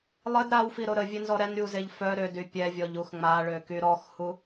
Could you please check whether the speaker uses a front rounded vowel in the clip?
yes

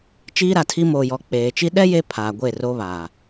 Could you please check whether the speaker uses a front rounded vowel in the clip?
no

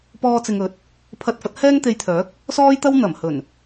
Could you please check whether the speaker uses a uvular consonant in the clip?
no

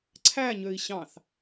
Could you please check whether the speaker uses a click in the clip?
yes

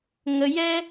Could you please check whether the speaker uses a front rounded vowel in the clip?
no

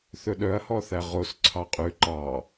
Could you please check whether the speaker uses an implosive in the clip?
yes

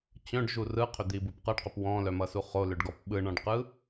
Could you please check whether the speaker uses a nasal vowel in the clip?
yes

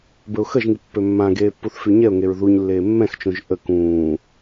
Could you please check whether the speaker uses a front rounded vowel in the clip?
yes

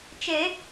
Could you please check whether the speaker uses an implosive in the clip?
no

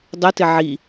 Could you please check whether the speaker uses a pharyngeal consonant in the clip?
yes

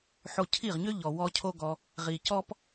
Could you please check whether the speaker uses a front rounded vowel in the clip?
yes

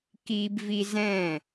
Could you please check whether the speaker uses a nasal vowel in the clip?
yes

